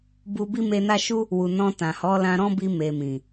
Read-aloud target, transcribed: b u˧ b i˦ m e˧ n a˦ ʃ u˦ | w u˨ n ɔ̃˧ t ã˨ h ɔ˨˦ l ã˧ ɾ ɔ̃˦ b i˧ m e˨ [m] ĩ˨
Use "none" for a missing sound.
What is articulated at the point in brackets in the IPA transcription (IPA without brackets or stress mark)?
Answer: m